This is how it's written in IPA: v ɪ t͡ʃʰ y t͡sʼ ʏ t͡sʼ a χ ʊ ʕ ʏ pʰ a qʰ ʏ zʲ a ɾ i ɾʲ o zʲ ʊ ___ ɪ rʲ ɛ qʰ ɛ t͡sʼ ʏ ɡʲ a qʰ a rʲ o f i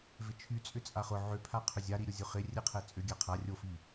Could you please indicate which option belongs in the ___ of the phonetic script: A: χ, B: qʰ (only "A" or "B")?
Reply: A